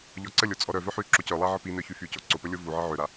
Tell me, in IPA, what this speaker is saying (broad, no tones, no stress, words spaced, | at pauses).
ʎɔǀəlʲo t͡sʼɔɾœvœ ħy ǁocœlˠa ʕəpinœ çyfyco ǀopə lʲovuʕə ʕøɾa